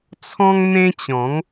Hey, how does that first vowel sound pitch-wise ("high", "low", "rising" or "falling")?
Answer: high